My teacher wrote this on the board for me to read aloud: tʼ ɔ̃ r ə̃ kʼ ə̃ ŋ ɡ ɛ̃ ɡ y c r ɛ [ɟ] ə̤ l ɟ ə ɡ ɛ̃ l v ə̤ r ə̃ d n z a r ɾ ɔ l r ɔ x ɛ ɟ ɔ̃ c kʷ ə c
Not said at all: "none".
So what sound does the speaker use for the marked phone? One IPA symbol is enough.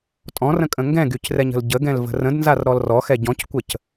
ɲ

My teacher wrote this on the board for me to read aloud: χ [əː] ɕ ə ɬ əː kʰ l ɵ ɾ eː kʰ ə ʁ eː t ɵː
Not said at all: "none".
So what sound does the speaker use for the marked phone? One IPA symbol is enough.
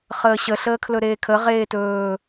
əː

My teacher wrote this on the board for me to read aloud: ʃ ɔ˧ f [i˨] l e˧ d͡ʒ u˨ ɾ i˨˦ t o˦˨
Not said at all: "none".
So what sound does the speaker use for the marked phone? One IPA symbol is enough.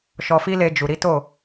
i˦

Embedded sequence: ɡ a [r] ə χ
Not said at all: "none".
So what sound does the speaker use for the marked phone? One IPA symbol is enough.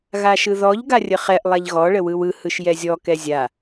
rʲ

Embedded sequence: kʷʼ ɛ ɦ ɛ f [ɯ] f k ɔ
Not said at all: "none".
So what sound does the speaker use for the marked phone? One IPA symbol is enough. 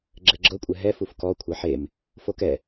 u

